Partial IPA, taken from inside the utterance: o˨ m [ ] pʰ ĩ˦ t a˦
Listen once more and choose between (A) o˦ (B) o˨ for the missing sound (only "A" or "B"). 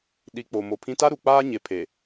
B